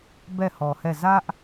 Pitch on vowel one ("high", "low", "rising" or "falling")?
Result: falling